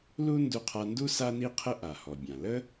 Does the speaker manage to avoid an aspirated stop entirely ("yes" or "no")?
no